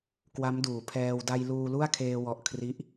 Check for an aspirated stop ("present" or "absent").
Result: present